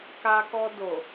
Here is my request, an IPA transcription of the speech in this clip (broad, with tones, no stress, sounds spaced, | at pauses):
k a˧ k ɔ˧ d o˨